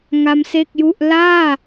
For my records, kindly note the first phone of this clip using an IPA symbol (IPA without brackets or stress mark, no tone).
ŋ